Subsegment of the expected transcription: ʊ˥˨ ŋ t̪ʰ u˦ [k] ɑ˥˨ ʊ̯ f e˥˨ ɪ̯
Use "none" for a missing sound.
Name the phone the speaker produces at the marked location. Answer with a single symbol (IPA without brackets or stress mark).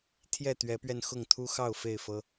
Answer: x